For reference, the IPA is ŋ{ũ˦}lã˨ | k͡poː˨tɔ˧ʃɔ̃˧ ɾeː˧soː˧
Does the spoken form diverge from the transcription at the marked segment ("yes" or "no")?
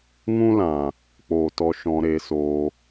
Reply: no